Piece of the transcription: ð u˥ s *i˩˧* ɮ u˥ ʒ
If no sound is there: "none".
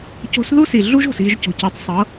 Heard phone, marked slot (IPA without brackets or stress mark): i˩